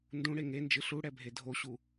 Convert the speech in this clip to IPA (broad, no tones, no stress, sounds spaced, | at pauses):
n d ũ ɽ e ŋ e n d͡ʒ ɨ ɬ u ɽ ɛ bʱ e dʱ o ɕ u